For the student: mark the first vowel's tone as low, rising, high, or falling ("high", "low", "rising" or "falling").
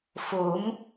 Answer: rising